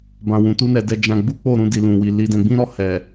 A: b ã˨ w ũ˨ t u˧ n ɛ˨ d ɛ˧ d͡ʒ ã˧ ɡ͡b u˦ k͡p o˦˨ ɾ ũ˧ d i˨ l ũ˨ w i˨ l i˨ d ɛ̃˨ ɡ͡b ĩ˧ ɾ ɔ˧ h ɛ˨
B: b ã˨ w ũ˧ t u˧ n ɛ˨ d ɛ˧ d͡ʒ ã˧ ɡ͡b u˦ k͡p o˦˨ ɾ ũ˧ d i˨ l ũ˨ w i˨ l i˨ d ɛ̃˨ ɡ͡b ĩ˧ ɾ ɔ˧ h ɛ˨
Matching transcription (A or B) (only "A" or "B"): A